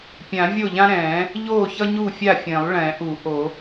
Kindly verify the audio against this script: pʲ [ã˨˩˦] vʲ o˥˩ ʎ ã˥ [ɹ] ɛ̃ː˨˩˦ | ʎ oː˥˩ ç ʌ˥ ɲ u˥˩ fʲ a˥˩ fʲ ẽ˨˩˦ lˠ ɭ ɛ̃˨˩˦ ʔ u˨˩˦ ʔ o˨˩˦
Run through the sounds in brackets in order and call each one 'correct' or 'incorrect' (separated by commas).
correct, incorrect